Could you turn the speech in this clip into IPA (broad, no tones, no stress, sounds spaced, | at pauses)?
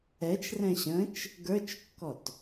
ɛ t͡ʃ r ɛ̃ ɕ ə̃ t͡ʃ | ɡ ə˞ t͡ʃ kː ɔ t